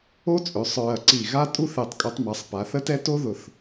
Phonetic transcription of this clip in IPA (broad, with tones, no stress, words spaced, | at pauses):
o˥t͡sʼø˩˧sˤ ɹɐ˧˩ǀi˧˩ɣa˥ tʼu˥θe˧˩tˤkʼu˧tˤmɐ˩˧sˤ pa˩˧θə˥tɛ˥ to˥ðʊ˧˩θ